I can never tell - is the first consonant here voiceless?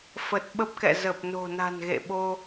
yes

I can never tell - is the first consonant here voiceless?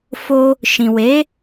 yes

